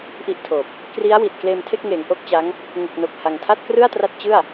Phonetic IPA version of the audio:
ʔ i˥˩ ʔ tʰ oː˨˩ p̚ | k r i˦˥ a̯ w i˨˩ t̚ k l eː˧ m tʰ e˥˩ k̚ ŋ eː˩˦ ŋ ʔ o˦˥ k̚ t͡ɕ a˦˥ ŋ | ŋ u˨˩ k̚ n o˨˩ k̚ h a˧ ŋ tʰ a˥˩ t̚ k r ɯ˥˩ a̯ t r a˦˥ t̚ t͡ɕ ɯ˥˩ a̯

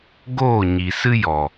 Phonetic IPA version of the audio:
ɡ oː˦˨ ɲ i˨ s ɨ˦ j ɔ˨

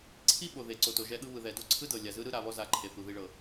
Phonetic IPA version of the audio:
ǀʰ i˦ ɓ o˨ ð e˨ ǀ o˨ t o˨ ʒ ɛ˦ ɠ ɯ˦ β ɯ˨ ð ɛ˨ d o˦ ǀʰ ɯ˦ d ɤ˨ lʲ a˨ z ɯ˦ ɾ ɯ˦ ɾ a˨ β ɔ˦ z a˨ ǃʰ e˨ θ u˨ ð i˦ ɭ ɤ˨

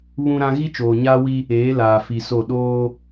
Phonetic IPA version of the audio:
β ũ˦ ɾ ã˦ ɣ i˦ t͡ʃ oː˨ ɲ aː˦ w i˦ | eː˨˦ l aː˨ f i˨ s o˦˨ ɗ oː˦

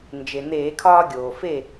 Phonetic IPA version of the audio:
n d͡ʒ e˩ n̪ eː˧˩˧ kʰ ɒː˦ ɡʲ oː˩ f e˥˨

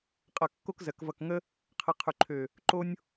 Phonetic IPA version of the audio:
qʼ ʌ˧˩ kː o˥ k z ɜ˩˧ k v ʌ˧˩ k ŋ ə˥ | qʰ ə˧ qʰ ʉ˧˩ ǃʰ ø˧˩ | ǃ o˥ nʲ

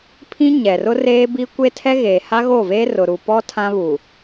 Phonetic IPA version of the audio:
pʰ ĩ˦ ɲ ɛ˨ r ʊ˦ r eː˦ b i˦ kʷ e˦ tʰ ɛ˦ ɣ eː˨ h a˦ ɣ o˦˨ v eː˦ r ʊ˨ ɾ u˨ p ɔ˦ tʰ ã˦ β u˨

